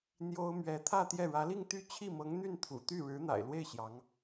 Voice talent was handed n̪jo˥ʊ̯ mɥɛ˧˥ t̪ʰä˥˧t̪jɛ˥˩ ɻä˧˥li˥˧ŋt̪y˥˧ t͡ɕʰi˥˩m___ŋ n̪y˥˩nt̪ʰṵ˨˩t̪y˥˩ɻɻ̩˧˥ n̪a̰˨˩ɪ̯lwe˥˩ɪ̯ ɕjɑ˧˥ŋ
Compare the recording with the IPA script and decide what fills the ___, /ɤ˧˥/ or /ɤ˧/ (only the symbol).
ɤ˧˥